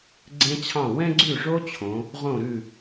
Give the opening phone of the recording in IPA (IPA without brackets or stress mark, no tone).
ɡ͡ǀ